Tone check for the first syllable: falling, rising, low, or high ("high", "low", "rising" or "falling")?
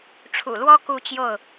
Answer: low